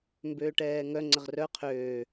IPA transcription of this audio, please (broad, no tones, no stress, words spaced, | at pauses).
mbøːʈɛːŋœ ŋ͡ǀəʁrœ qʰøː